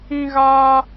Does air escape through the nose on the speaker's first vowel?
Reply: yes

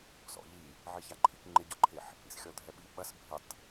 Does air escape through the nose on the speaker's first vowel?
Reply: no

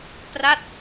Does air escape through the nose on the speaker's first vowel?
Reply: no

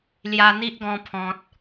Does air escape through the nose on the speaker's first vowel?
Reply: no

